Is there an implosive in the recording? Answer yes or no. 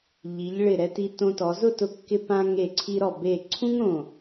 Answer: no